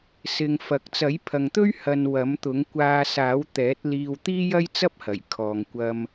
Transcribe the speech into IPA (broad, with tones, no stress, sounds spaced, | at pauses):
s ɪ˧ ŋ f ɐ˨ k̚ t͡s ɐ˨˥ j pʰ ɐ˨ ŋ t̪ ɵ˥ ɥ h ɐ˧ n w ɐ˨˥ m t̪ ʊ˨˥ ŋ kʷ aː˧ s aː˨˥ w t̪ ɛː˨˥ t̚ l iː˧ w t̪ iː˥ j ɐ˥ j t͡s ɐ˥ p̚ h ɐ˨˩ j kʰ ɔː˨ ŋ kʷ ɐ˧ m